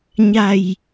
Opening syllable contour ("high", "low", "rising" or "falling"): low